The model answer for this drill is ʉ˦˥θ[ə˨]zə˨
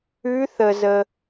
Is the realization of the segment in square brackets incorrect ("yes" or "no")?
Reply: no